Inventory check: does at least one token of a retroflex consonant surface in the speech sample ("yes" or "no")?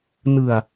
no